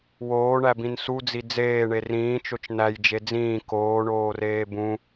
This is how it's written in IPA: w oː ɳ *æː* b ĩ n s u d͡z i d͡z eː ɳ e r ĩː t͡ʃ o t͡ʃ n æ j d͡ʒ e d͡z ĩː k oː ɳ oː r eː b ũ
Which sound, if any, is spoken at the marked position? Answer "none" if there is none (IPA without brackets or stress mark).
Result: æ